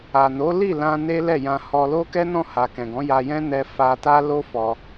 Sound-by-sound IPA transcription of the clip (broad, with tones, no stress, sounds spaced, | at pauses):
a˨ n o˨˦ l i˦˨ l ã˧ n e˦ l ɛ˦˨ j ã˧ h ɔ˧ l o˦ k ɛ˦ n ɔ̃˦˨ h a˨ k ɛ̃˨ ɡ ɔ̃˨˦ j a˧ j ɛ̃˦ n ɛ˧ f a˧ t a˦ l o˦ f ɔ˧